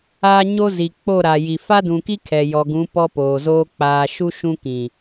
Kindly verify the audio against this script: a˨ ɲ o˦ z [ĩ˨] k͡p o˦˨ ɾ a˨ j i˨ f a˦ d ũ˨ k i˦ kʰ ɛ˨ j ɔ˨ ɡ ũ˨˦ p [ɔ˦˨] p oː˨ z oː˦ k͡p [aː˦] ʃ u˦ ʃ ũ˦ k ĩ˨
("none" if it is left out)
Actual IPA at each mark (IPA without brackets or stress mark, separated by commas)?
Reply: i˨, ɔ˦, aː˨